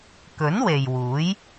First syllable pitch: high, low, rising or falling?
rising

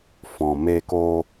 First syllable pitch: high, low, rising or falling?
low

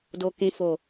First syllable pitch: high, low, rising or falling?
low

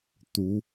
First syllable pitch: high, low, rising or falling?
rising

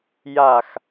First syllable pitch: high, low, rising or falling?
low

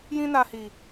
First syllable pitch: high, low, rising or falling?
high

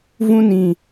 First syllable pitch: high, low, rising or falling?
high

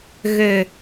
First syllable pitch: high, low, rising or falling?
low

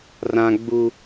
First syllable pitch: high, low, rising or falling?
high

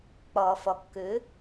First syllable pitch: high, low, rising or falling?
low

